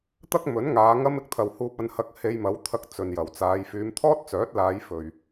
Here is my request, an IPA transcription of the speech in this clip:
t̪ɐ˥k̚mɵ˨˥nŋaː˨˧ ŋɐ˥mɪ˧k̚t̪ʰɐ˨whuː˧p̚ ɐ˧nhɐ˧k̚ he˧jmɐ˨˥wt̪ʰɐ˧k̚ t͡sɵ˨njɐ˨˩wt͡saː˨˧j fyː˨˧mt̪ʰɔː˥t̚t͡sœː˨˥t̚laː˨˧j fɵ˨ɥ

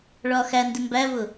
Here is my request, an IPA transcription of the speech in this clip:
ɭɒxændɪ mbævʊ

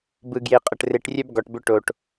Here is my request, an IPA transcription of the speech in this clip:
bɯ˨ɡje˨qʼə˨ʈ re˨ʈrʲœ˦b ɡɔ˨ʈbʏ˦ ʈo˨ʈ

